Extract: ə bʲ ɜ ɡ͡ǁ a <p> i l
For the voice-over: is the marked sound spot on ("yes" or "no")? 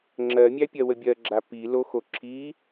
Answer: yes